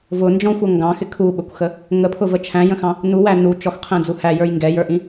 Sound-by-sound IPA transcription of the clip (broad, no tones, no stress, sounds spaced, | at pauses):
v ʊ n d͡ʒ ɔ̃ xʷ ʌ ŋ ɡ ɑ̃ x ɪ kʰ u ɓ ə kʷ x ə | ŋ ə pʰ ʊ v ə t͡ʃʰ æ̃ j ə̃ x ɑ̃ | n u w æ n u t͡ʃ ɔ x qʰ ɛ̃ d͡z u h æ j ə˞ j ŋ ɡ ɛ j ə˞ ʔ ĩ